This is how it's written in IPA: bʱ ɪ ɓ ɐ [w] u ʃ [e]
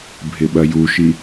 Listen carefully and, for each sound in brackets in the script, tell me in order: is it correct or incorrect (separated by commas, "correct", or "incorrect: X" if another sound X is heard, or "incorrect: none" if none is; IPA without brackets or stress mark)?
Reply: incorrect: j, incorrect: i